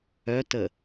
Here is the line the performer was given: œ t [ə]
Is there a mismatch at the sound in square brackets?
no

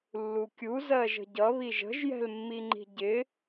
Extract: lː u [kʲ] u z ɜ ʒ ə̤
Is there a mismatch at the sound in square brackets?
no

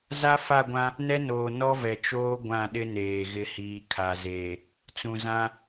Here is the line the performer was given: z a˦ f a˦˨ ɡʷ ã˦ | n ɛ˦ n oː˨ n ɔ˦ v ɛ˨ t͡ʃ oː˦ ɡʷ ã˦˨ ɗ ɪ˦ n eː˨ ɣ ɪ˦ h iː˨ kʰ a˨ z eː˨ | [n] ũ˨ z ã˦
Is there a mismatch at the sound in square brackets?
yes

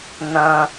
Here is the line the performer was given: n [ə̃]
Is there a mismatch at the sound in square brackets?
no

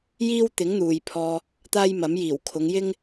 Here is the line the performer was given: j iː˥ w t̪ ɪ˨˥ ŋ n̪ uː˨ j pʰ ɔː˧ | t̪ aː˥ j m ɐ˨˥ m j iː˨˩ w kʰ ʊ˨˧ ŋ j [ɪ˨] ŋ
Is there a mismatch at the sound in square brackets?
yes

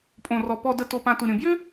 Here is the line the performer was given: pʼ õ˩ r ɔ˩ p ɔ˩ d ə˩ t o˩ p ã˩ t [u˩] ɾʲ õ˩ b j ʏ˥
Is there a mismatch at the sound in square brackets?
no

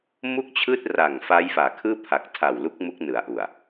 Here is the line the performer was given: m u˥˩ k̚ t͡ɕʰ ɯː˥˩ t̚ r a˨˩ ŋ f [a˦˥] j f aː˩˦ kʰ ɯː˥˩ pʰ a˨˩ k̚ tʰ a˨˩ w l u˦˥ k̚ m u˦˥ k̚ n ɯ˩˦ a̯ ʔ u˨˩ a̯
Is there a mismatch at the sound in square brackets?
no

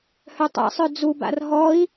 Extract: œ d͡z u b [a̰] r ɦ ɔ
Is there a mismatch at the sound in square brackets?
no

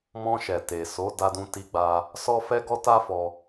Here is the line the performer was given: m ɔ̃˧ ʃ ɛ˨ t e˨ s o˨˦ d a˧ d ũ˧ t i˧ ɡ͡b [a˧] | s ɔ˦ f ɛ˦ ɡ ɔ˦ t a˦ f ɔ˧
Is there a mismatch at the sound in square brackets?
no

